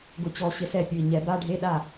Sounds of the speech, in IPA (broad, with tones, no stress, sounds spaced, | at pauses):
ɡ ʊ˨˩ t͡ɕ ɔ˨˩ ɕ ɪ˨˩˦ s ɛ˨˩ pʲ ʊ˨˩ i̯ ɲ ɛ˨˩˦ b a˧˥˧ ɖʱ e˧˥˧ ɗ a˥˩